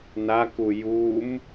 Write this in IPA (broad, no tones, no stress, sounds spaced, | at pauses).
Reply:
n a k u j u m